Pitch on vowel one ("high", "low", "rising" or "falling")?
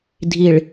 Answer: low